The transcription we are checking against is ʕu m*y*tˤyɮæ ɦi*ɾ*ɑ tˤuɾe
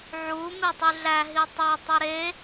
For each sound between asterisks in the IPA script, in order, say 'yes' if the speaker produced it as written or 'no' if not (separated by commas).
no, no